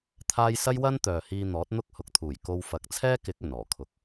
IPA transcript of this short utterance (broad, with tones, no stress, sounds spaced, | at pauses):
t̪ʰ aː˥ j s ɐ˥ j w ɐ˥ n t̪ œː˨ h iː˧ n̪ ɔː˨˥ t̚ n̪ ʊ˥ k̚ h ʊ˨˥ k̚ t̪ʰ uː˨˩ j k o˧ w f ɐ˨˥ k̚ t͡sʰ ɛː˥ k ɪ˨˥ k̚ ɵ˨˩ n ɔː˨˩ kʰ ʊ˨˥ k̚